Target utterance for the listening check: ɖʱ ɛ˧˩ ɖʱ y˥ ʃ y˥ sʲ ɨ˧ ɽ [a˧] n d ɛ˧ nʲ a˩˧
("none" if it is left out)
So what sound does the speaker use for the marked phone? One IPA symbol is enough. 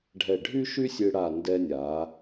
a˧˩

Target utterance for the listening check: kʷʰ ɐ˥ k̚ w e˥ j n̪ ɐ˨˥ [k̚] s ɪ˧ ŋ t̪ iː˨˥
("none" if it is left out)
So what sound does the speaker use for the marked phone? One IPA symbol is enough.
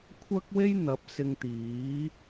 p̚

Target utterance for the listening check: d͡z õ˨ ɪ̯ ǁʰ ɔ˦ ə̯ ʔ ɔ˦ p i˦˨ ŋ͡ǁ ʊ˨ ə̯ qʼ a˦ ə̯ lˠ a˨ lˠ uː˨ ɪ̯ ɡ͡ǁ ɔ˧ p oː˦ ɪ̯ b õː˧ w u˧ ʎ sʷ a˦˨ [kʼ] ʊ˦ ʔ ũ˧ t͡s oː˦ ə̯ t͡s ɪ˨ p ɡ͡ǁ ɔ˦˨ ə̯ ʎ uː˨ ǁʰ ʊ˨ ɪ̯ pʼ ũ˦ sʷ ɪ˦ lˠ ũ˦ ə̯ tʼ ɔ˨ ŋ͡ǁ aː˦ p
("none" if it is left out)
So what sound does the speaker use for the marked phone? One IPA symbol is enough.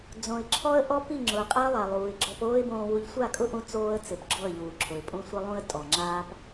kʼ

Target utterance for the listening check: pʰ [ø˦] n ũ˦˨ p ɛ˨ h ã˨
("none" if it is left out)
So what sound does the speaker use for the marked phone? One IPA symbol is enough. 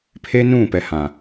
e˦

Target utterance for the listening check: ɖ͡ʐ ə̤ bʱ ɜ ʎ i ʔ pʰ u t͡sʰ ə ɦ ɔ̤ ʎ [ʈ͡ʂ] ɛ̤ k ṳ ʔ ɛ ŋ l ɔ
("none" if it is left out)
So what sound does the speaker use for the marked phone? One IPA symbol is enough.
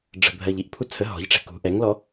ʈ͡ʂ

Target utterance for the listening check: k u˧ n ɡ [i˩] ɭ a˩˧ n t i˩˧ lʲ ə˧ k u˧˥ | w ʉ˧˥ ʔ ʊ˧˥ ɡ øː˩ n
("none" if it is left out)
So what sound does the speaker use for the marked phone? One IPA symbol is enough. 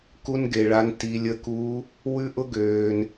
e˩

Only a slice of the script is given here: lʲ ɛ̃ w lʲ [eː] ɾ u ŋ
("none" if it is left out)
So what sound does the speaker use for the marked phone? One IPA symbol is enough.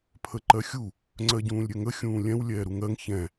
ɛː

